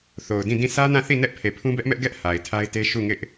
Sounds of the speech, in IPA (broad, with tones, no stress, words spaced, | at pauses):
θo˨ʊ̯dĩ˦˨dĩ˦˨ sʰä˦nã˦˨θi˦˨ nɛ˦ʔpʰe˨pʰũ˦ bɛ˦ʔmɛ˦ʔ ɡɛ˦ʔ ha˨ɪ̯tʰa˦ɪ̯te˦ ʃu˦˨ŋɪ˦ʔ